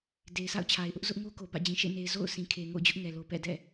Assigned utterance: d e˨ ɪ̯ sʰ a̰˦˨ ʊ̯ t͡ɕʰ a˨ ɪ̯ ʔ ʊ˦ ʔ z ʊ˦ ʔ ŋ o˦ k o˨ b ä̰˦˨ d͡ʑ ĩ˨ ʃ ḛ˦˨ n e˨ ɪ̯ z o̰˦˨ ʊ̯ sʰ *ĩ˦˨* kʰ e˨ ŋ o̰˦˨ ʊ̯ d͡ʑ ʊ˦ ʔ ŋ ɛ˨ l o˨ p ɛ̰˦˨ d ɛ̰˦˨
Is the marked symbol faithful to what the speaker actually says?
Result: no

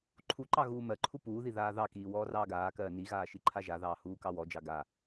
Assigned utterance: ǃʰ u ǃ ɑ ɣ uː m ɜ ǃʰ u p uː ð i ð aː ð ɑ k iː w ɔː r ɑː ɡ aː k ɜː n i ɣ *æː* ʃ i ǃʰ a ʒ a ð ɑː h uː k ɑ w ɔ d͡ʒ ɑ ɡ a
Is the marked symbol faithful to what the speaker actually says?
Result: no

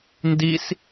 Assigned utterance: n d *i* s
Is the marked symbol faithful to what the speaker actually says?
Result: yes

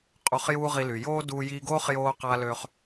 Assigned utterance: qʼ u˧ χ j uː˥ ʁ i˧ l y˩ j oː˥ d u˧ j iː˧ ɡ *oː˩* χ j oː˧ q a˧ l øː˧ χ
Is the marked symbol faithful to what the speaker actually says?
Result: no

